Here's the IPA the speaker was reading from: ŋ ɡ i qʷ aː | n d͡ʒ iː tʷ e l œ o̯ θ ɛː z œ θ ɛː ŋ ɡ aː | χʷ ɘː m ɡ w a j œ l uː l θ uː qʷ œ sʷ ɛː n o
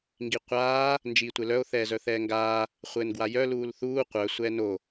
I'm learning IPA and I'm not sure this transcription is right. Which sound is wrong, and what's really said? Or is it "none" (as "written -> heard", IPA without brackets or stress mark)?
m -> n